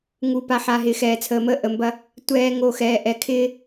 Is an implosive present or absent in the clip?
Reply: absent